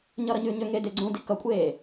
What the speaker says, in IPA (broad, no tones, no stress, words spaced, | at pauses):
ɲʌɾʌɲʉɲø ŋe deɡ͡ǀũ dikʌkʷʼeː